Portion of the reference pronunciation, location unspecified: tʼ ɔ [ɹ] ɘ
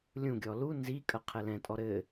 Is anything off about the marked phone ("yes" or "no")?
yes